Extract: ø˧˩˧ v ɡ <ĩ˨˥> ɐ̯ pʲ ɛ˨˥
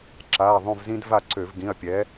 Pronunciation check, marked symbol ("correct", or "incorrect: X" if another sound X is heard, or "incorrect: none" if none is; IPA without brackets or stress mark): incorrect: ĩ˩˧˩